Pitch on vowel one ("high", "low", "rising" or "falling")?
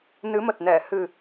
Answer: rising